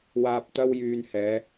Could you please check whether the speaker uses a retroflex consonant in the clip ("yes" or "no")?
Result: no